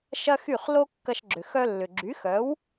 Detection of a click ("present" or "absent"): present